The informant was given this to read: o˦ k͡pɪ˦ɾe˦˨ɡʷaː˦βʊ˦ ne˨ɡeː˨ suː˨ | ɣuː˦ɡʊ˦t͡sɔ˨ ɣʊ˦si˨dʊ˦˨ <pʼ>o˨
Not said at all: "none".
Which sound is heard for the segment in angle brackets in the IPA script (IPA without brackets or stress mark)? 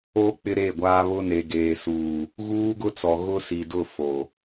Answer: f